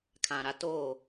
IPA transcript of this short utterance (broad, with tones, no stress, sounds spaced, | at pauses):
kʰ ã˨ ɾ a˦ t oː˦˨